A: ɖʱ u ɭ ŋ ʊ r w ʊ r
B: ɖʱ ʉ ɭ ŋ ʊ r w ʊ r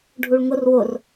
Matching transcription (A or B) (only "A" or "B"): A